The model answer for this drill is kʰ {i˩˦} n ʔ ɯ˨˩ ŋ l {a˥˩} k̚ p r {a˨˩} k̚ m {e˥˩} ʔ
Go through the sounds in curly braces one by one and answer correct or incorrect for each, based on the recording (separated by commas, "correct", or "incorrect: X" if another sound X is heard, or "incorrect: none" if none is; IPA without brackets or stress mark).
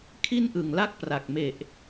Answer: incorrect: i˥˩, correct, correct, incorrect: e˨˩